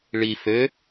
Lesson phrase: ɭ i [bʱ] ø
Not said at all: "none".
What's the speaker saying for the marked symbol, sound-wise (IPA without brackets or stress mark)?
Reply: f